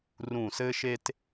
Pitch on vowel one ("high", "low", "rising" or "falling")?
low